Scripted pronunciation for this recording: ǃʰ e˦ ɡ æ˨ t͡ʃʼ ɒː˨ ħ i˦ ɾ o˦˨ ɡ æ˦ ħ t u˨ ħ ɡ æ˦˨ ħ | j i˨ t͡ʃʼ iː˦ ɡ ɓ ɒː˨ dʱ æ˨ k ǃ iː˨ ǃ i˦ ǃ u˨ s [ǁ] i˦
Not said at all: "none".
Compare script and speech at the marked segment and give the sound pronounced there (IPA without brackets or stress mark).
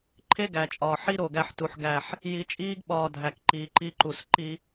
ǃ